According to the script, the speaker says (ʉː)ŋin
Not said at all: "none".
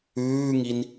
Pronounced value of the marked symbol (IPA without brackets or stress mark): ʉː